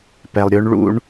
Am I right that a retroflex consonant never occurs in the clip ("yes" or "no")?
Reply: no